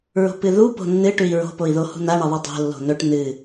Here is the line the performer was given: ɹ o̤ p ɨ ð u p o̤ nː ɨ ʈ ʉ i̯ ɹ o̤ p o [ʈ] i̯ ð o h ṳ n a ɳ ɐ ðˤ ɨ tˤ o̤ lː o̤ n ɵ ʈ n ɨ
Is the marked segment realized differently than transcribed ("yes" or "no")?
yes